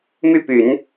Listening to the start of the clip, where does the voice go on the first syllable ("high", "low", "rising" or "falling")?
falling